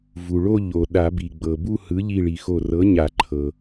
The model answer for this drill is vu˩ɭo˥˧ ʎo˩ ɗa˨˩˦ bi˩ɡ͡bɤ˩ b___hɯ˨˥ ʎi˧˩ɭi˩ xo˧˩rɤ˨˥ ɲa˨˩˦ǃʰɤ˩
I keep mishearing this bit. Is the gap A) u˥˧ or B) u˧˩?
A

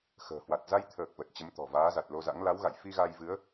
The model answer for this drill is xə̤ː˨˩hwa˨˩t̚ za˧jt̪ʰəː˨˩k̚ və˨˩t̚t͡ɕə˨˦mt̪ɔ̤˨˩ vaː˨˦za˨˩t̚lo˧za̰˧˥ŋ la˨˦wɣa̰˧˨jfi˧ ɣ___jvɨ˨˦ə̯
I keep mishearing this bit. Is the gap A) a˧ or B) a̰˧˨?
A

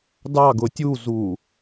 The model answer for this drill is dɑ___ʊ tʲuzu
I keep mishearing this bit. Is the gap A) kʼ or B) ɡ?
B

